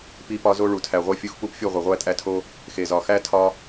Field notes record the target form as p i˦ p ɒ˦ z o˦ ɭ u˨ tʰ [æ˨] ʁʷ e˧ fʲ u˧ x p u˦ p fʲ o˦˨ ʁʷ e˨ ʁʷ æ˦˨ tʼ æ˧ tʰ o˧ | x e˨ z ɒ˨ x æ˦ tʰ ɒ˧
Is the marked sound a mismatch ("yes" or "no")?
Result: no